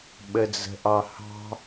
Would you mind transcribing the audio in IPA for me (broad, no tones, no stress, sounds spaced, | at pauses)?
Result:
ɓ ə d͡z ə̤ ʔ ɑ h ɑ̤